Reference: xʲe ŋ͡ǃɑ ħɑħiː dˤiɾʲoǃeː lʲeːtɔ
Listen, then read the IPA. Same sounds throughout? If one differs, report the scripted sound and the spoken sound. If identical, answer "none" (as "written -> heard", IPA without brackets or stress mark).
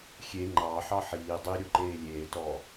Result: none